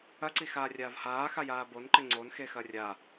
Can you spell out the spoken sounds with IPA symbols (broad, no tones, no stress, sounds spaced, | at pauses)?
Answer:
ɐ ǀ i x aː rʲ aː v h aː x a j aː b o n ǃ ɘ ŋ͡ǀ o n x e x ɐ rʲ a